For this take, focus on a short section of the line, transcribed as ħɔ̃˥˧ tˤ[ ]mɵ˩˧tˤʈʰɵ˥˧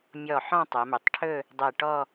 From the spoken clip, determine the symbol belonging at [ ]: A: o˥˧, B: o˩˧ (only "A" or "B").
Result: B